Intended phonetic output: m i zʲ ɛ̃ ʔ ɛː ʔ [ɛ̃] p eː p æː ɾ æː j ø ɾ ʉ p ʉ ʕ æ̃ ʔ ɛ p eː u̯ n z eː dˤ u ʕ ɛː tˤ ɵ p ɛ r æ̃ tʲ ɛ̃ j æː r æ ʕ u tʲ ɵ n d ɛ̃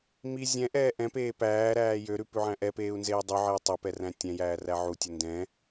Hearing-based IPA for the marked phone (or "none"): ɛ̃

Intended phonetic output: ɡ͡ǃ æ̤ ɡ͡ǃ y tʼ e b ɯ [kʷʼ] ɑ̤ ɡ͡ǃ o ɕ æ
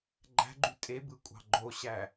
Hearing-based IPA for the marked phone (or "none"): kʷʼ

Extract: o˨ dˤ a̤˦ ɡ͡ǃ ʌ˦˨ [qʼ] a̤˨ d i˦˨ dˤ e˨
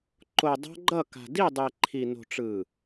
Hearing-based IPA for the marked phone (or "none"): k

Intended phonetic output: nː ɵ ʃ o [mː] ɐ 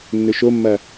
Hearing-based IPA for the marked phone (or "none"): mː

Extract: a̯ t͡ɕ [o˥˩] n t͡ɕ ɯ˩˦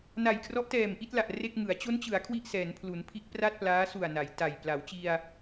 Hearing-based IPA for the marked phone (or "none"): o˦˥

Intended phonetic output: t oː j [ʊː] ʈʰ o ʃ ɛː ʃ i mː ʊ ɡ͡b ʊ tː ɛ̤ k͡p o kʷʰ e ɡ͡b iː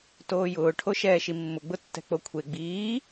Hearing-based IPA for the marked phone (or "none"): ʊː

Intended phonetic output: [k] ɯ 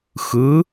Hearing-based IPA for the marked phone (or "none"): x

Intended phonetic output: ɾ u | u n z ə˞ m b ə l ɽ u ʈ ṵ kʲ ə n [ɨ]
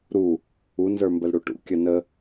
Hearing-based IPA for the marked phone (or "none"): ə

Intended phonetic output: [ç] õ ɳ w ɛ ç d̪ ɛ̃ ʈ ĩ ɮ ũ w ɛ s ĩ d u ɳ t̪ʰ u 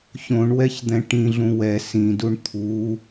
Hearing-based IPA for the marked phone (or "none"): ç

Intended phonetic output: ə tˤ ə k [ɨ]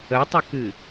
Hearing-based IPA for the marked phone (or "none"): ɨ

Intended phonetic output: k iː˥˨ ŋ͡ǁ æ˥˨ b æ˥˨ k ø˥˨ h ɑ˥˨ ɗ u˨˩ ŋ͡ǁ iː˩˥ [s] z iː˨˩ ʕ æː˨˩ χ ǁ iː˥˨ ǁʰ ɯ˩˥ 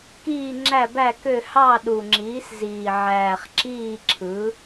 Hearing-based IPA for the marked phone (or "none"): s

